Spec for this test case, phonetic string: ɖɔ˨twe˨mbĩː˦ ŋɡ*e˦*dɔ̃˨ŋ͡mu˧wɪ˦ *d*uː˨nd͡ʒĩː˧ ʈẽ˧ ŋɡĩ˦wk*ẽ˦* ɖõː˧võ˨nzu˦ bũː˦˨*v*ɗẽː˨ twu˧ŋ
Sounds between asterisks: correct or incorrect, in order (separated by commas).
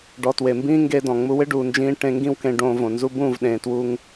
incorrect, incorrect, incorrect, correct